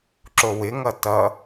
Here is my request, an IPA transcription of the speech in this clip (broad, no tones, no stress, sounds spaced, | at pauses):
ǁ o w ɪ ŋ ʌ t ʌ